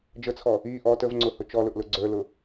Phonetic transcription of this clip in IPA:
d͡ʒət͡sʰɔ | i ʔɔ təvŋ͡ǀʊhʊ t͡ʃɔlʊʔlʊ ɡ͡ǀə˞lʊ

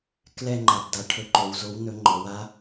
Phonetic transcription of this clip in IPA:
klɛ˥˨ ŋ͡ǃa˩˧bda˩˧ʈʰɵ˨˥ ǃo˩˧wzo˨˥w nɵ˨˥ŋ͡ǃɔ˩˧w a˨˥

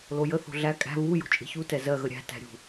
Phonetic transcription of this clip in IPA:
lojə θo̤ɮæ kʼæ̤ βu jo̤t͡ʃʼe̤çu tɛzɜ ɣəɾʲæ̤ tæ̤ɾʲṳ

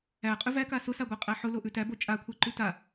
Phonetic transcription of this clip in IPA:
æqʼʉ væka sʊsaɡʷæqʼæ ħʊloʔʉ tæbo t͡ʃʼakʷʰæǃʉ ta

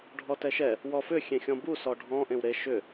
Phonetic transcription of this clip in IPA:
ɖʱɔtɛʃɛ | wɔfʏ xʲẽxʲɔ̃bu sɔɖʱɔ̃ ʔẽwɾe ʃʏ

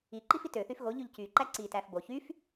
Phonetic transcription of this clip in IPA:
iǃifit øθyf ɣoʎyʎ cyǃæ ǀitæf bo çyf

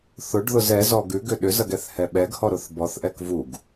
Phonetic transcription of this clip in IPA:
θʊɖðʊz ɛzɔ ɡʉɡʏ ɗʏzɐɡ ɛθhɛɓɛɡhɔ ɾʊθbɔθʔɛk vuɡ

